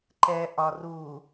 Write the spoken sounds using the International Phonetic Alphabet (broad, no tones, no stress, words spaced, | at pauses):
ǃɛ ʔɒ ru